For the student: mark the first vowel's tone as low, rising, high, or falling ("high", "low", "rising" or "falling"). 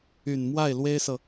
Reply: low